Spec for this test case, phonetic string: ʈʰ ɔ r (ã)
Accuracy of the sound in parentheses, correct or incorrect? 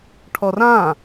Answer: correct